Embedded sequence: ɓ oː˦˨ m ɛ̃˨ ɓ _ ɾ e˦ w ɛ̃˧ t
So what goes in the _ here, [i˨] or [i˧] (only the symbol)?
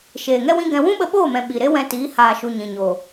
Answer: i˨